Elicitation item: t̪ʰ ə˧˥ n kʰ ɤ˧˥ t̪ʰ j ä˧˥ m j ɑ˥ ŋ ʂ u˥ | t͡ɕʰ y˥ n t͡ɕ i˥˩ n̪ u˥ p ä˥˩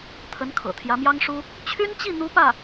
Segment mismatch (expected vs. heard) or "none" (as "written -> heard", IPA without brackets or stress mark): ɤ˧˥ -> ɤ̰˨˩